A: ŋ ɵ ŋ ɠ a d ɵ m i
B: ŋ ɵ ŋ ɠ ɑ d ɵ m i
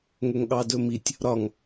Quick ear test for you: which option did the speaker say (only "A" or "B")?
B